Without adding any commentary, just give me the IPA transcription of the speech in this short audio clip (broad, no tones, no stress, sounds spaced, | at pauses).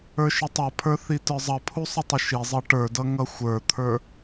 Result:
ə˞ ʃ ə tˤ ʌ pʰ ə˞ θ i t ə˞ zˤ ʌ pʰ u sˤ ə tˤ ə ʃ i zˤ ʌ ʈ ə˞ d ʌ ŋ ʌ xʷ ə˞ t̪ʰ ə˞